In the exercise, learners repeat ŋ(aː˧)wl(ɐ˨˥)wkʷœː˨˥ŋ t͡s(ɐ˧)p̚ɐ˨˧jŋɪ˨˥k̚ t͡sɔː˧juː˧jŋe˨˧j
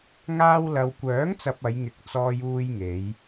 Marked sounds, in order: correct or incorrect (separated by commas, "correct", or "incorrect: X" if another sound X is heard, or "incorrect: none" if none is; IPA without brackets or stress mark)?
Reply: correct, incorrect: ɐ˨, correct